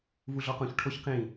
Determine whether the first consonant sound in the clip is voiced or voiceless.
voiced